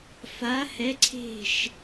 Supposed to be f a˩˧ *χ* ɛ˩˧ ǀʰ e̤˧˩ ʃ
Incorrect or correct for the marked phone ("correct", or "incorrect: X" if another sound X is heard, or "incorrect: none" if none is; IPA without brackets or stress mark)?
incorrect: h